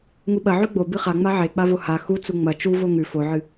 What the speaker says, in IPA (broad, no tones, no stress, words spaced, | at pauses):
ŋuɓɐ ʕʉɡ͡bo bɨχaŋ͡ma ʕek͡pavo ha xu t͡suŋ͡mɐ t͡ʃu voŋʉ foʕɨ